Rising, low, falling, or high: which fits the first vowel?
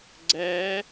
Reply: rising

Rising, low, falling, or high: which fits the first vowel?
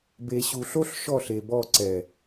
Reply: low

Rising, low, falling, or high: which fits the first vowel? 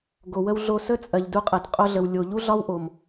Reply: low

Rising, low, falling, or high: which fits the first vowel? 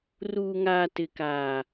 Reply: low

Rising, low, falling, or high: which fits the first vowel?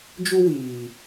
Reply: high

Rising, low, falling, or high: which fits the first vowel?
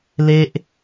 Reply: high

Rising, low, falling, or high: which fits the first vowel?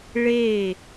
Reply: falling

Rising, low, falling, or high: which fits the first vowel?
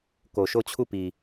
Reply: low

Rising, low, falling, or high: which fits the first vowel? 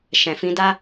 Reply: low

